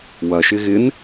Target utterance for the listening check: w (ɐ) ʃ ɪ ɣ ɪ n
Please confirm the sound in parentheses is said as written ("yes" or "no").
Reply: yes